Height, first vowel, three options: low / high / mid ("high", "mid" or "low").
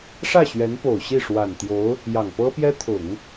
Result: low